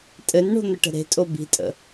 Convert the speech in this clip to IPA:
tʼ ɘ n ɳ o̤ n̪ ə ʈ ə̤ ɾ e̤ tʼ o b i̤ tʼ ə̰

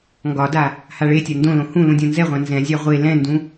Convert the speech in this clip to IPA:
ŋ ɡ ɒ d a | h a ɭ e tʲ a n d õ l õ h ũ l ũ dʲ õ n z ɛ ʁʷ ã n z ɛ̃ zʲ ɑ ʁʷ e l ɛ̃ n d ũ

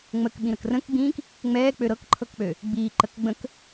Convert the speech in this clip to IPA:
ŋ͡m ə k ɓ ĩ ɾ ə k r ə̃ k ɡ͡b ĩː k | ŋ͡m ɛː k͡p ø ɾ ɤ k ǃʰ ɤ k k͡p ø | ɡ͡b iː ǃ ə k ɡ͡b ə̃ k

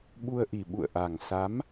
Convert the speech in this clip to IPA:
ɓ u˧ ə̯ ʔ i˨˩ ɓ ṵ˧˨ ə̯ ʔ a˨˩ ŋ s a˨˦ m

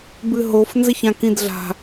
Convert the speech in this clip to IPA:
b ɨ ɦ o f n z ɘ ç ã k ĩ d ɮ a̤

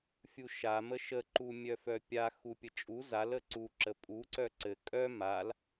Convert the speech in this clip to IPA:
fʲ u ʃ a m ə ʃ ə ǃ u mʲ œ f œ pʲ a x u pʲ ə t͡ʃʼ u z a l ə ǀ u ǁ ə pʼ u ǀ œ ǀ ɘ kʼ œ m a l

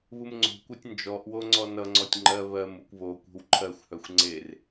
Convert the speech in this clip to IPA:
β u m ŋ͡ǀ o̤ kʷ œ tʲ n d͡ʒ ɔ ʔ w o ŋ͡ǀ ɔ n ʌ ŋ͡ǀ ɔ tʲ ŋ͡ǃ ɜ β ɜ m u kʷ β o kʷ e̤ w ǃʰ ɜ xʷ h œ xʷ ŋ͡ǀ e r

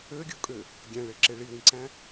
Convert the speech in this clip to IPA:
ø ɡʲ o kʼ ø | ɡʲ æ̃ ɭ e ǁ e ɭ i w ĩ ǀ æ̃

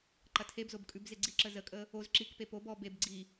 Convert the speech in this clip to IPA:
ǃ ɐ tʰ e b z o b kʼ ʉ b z e ɡ͡ǀ i ǁ ə z ə kʼ ə | o z ǁ i k p e p o b ɔ b e b ɡ͡ǀ i

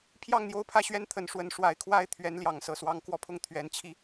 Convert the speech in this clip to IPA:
pʰ j ɑ˥˨ ŋ n̪ j o˥˨ ʊ̯ pʰ ä˥˨ ɕ ɥ ɛ˦ n t̪ʰ ə˨˦ n ʂ w ə˨˦ n ʂ w a˨˩ ɪ̯ kʰ w a˥˨ ɪ̯ t̪ʰ ɥ ɛ˨˦ n l j ɑ˨˦ ŋ s ɤ˨˩ s w ɑ˨˦ ŋ k w ɔ˧ pʰ ʊ˥˨ ŋ t̪ʰ ɥ ɛ˨˦ n t͡ɕʰ i˥˨

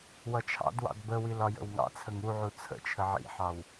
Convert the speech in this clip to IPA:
w ʌ t͡ʃʰ ɑ̰ d w ɑ̰ d b ə w i l ɒ j ə̰ w ŋ ɑ̰ t͡sʰ ə ŋ u ʕ u t͡sʰ ə̰ t͡ʃʰ ə ʕ ḭ ħ ɑ w

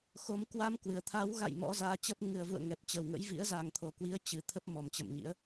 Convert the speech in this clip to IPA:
x o˨˦ m k w a˧ m k w ɨ˨˩ ə̯ t̪ʰ a˨˦ w ɣ a̰˧˨ j m ɔ̰˧˥ z aː˨˦ t͡ɕ ə˦˥ p̚ ŋ ɨ˨˩ ə̯ v ṵ˧˨ ə̯ ŋ ɛ˨˩ p̚ t͡ɕ ə˨˩ w ŋ ə̰˧˥ j v ḭ˧˥ ə̯ z a˨˩ ŋ t̪ʰ o˨˩ k w i˨˦ ə̯ t͡ɕ ɨ˨˩ t̪ʰ ə˦˥ p̚ m ɔ˨˩ m t͡ɕ ə̰˧˨ m ɲ ḭ˧˥ ə̯

